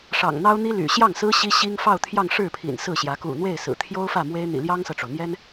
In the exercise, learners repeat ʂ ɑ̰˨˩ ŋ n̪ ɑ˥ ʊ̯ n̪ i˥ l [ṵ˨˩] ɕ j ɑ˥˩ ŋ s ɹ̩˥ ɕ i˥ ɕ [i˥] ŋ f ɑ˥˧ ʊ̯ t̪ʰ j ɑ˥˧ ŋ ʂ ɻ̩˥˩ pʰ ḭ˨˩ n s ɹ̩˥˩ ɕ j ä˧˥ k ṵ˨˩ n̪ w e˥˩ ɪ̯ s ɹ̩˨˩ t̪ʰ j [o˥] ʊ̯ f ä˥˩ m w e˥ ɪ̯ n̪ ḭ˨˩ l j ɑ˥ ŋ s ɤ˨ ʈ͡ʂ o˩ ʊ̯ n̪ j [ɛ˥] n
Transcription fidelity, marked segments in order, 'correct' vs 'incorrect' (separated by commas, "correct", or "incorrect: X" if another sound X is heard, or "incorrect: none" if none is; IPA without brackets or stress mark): incorrect: y̰˨˩, correct, correct, correct